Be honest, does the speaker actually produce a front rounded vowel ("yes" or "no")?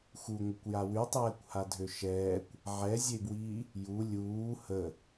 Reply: yes